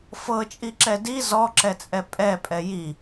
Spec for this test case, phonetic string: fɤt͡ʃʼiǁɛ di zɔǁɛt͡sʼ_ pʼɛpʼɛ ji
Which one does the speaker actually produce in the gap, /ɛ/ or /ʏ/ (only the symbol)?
ɛ